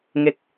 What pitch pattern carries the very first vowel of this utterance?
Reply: falling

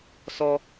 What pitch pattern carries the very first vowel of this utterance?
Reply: low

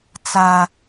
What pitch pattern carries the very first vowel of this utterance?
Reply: high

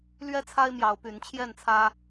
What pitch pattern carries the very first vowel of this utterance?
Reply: high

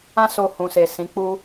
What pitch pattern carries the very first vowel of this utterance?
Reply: high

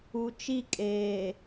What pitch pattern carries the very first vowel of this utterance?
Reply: low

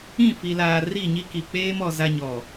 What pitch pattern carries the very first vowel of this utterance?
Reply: falling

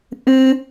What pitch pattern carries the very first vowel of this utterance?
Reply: high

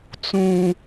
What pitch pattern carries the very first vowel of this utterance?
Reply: low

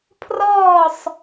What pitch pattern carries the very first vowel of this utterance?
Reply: falling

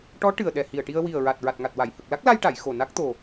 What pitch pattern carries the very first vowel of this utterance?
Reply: rising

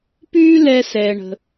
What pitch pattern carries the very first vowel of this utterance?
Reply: high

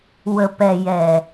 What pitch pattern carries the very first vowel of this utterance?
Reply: low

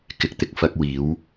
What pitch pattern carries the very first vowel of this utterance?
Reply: low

